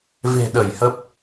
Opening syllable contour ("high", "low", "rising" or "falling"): low